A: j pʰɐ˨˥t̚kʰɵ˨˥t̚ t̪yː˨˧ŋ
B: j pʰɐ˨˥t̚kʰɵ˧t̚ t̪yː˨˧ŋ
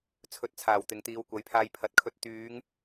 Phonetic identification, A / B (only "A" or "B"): B